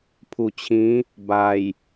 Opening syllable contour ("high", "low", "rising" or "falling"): low